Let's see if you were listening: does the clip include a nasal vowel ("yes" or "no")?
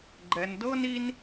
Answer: no